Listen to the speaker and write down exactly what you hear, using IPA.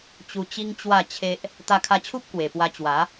t͡ɕ u˧ t͡ɕ i˦ ŋ t͡ɕ w a˥˧ t͡ɕʰ e˦ ʔ | t̪ a˧ kʰ a˧ t͡ɕʰ u˦ p̚ k w e˨˩ p w a˧ t͡ɕ w a˨˦

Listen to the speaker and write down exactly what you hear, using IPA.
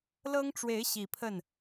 l ɤ˥ ŋ ʈ͡ʂ w e˧˥ ɪ̯ ɕ i˨˩ pʰ ə˥˩ n

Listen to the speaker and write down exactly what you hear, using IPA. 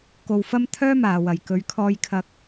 k o˧ w f ɐ˥ m t̪ʰ œː˥ m aː˨ w ɐ˨ j k ɵ˨˧ ɥ kʰ ɔː˧ j kʰ ɐ˧ k̚

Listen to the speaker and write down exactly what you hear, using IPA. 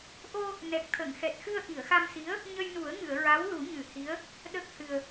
ʔ o˧ | n ɛ˨˩ k̚ t̪ʰ ə˨˩˨ ŋ x ɛ˨˩ t̚ x ɨ˧ ə̯ ʔ i˨˩˨ ə̯ x a˧ m s i˧˥ ə̯ | ɲ ə˧ j n u˨˩˦ ə̯ ŋ ɨ˨˩˨ ə̯ ɹ a˧˥ w l u˨˩˦ ɲ ɨ˨˩˦ h i˧˥ ə̯ | ɗ ə˦˥ k̚ h ɨ˨˩ ə̯

